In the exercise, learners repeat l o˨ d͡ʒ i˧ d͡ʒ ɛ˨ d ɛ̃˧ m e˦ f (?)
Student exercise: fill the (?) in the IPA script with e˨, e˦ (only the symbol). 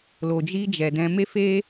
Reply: e˦